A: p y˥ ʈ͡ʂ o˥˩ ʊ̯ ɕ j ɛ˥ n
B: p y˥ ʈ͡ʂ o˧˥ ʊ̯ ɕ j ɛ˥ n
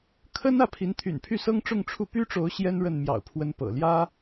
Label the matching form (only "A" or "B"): B